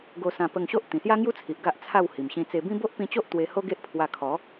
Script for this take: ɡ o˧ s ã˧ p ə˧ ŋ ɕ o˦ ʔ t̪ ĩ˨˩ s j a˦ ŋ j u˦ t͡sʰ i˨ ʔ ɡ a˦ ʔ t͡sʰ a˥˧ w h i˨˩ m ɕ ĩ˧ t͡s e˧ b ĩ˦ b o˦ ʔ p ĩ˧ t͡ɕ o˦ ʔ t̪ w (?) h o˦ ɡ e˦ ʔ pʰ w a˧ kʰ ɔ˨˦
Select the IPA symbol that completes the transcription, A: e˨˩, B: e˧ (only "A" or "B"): B